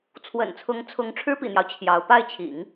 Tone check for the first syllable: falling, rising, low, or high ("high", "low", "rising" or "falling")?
low